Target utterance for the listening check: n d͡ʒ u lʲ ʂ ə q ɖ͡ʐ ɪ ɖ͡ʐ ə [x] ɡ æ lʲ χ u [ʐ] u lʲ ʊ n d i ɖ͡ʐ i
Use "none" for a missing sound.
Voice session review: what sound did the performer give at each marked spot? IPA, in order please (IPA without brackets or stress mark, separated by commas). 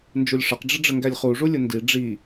ŋ, ʐ